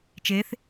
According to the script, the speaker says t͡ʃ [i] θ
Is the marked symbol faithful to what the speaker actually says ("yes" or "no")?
no